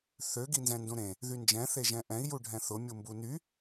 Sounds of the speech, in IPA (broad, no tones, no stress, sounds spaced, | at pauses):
θ ø ɡ i n z ɛ̃ n d ũ ɾ ẽ | ð y n d͡ʒ ɛ̃ θ e ʒ ɛ̃ ʔ ɛ̃ i̯ j u ɖʱ ɛ̃ θ ʊ mʲ u m b u n y